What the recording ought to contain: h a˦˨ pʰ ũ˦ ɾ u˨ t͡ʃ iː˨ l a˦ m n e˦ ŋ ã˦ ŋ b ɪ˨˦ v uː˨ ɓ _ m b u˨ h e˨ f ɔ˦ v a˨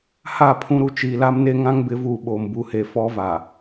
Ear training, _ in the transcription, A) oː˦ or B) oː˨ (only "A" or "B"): B